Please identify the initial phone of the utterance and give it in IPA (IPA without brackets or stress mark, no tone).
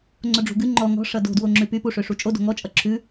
ŋ͡ǀ